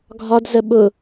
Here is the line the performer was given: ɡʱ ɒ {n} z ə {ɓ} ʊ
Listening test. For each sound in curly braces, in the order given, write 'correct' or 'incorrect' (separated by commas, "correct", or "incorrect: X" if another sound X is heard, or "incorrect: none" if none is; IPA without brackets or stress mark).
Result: incorrect: d, correct